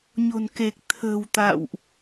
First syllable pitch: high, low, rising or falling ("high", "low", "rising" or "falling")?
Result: low